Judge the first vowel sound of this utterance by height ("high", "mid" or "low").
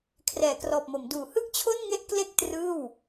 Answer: mid